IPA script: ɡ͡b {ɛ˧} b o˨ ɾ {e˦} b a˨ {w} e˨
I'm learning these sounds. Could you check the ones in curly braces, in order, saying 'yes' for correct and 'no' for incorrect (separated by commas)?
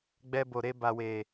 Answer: yes, no, yes